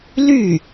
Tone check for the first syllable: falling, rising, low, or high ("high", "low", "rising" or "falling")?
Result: falling